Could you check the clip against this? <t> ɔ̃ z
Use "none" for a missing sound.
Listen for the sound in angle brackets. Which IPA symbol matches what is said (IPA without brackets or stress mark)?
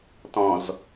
t